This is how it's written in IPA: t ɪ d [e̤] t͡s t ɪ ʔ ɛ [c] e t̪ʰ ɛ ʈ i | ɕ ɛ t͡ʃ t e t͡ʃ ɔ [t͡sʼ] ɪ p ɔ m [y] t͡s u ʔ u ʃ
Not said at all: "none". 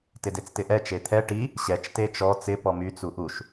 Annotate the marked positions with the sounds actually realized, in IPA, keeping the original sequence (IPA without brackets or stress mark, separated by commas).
e, t͡ʃ, t͡s, y